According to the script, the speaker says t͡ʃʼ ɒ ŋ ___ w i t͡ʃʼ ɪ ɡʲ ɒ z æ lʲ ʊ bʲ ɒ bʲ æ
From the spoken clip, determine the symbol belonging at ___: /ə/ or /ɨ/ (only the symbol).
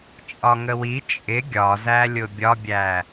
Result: ə